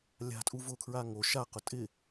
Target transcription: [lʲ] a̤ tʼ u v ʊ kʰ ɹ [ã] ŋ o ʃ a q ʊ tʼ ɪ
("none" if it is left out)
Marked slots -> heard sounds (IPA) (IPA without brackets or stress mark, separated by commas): lʲ, a